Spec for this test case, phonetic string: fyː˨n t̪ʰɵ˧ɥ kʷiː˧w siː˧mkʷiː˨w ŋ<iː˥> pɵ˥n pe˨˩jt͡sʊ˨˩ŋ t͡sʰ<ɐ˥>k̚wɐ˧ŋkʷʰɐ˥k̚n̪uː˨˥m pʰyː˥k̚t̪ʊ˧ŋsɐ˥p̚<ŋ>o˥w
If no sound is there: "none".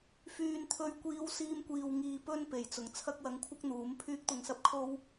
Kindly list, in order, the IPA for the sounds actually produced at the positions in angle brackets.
iː˨, ɐ˥, kʰ

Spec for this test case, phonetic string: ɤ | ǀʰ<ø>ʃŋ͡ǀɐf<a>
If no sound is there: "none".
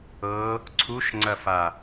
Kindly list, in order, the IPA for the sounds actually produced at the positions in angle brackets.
u, a

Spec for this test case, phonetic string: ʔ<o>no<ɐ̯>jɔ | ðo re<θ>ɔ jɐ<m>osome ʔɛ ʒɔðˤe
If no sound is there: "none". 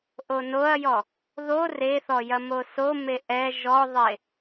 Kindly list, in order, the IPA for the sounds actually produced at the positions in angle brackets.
o, ɐ̯, θ, m

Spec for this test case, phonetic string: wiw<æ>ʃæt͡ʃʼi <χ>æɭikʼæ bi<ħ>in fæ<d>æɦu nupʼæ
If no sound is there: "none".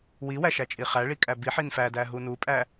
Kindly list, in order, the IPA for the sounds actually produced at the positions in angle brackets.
æ, χ, ħ, d

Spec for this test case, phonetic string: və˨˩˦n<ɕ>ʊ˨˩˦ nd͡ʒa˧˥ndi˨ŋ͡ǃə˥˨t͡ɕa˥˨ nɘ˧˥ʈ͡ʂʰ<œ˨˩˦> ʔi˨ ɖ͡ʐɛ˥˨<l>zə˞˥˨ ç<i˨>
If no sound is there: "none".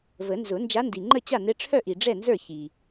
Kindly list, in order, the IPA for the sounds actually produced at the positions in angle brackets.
z, œ˥˨, n, i˨

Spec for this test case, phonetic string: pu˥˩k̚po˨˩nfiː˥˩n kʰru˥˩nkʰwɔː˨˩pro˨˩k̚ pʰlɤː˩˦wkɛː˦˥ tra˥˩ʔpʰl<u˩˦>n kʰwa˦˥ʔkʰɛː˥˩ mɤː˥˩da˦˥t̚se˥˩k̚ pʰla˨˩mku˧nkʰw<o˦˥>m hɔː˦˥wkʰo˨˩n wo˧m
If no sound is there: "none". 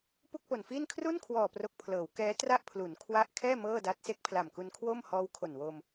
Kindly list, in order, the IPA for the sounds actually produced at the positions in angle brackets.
u˩˦, o˥˩

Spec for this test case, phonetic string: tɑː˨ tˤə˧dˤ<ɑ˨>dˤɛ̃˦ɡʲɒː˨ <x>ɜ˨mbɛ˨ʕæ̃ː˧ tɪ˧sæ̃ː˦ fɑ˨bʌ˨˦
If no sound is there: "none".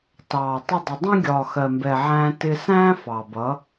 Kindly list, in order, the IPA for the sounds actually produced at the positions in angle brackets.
ə˨, x

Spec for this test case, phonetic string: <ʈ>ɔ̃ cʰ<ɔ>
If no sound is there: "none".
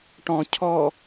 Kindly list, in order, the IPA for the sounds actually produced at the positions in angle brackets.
ʈ, ɔ

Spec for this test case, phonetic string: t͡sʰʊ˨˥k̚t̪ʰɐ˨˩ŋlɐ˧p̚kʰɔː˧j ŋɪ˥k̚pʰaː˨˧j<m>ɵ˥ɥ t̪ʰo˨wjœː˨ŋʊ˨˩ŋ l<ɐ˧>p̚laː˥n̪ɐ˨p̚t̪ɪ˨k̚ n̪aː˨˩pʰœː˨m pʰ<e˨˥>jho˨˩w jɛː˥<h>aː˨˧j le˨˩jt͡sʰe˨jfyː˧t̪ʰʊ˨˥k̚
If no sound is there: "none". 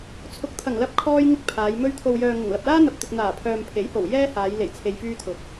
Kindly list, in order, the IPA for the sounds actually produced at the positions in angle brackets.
m, ɐ˨, e˨˥, h

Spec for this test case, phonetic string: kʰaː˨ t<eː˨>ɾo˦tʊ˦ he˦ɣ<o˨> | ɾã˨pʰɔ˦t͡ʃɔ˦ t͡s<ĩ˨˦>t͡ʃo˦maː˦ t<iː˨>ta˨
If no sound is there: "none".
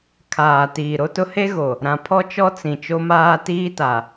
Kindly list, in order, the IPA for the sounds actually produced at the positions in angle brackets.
iː˨, o˨, ĩ˨, iː˦

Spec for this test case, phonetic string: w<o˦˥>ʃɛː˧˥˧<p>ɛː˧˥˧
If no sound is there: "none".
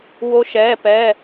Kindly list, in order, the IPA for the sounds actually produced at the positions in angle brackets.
o˦˥, p

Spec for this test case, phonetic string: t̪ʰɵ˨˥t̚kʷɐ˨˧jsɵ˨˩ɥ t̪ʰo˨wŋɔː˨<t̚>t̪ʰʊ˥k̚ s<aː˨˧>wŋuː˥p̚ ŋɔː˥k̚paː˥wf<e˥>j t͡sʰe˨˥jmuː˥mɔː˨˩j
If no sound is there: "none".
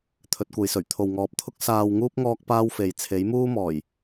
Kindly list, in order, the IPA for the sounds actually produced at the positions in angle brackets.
p̚, aː˧, e˨

